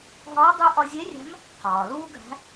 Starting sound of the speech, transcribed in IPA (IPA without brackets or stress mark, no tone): ɦ